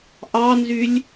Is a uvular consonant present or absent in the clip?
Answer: absent